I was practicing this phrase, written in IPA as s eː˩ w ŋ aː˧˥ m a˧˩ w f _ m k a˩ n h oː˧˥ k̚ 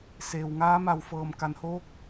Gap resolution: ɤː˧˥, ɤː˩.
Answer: ɤː˩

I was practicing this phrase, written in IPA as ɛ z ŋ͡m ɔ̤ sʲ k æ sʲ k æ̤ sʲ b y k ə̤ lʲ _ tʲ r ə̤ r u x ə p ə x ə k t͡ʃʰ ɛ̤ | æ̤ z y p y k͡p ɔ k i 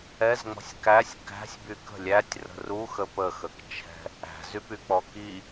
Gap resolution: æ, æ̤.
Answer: æ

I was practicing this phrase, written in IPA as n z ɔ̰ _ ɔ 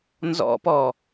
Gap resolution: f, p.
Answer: p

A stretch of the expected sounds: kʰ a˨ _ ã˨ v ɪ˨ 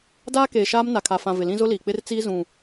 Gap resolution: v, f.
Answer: f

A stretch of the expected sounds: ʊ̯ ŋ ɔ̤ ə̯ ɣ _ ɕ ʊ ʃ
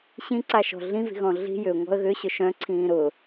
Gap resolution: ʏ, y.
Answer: ʏ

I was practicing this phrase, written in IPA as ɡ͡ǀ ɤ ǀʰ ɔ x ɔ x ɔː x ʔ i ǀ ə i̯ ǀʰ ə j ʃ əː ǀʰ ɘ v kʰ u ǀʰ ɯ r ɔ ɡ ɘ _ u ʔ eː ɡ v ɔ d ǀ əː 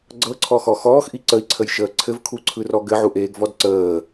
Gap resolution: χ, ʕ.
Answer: ʕ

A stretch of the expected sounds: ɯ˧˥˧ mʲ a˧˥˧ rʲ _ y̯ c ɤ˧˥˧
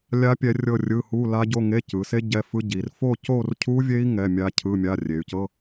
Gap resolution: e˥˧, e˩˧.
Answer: e˩˧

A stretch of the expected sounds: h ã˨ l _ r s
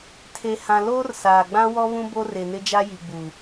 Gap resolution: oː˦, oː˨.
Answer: oː˦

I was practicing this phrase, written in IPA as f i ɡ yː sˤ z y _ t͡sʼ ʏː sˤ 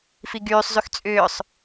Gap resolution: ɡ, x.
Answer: x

